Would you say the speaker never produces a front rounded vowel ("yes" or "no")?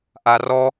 yes